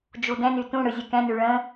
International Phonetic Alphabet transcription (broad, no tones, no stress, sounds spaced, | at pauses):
d͡ʒ u d ɛ̃ n y t ũ ɽ ɯ zʲ ɨ k ɛ̃ n y ɭ ə̃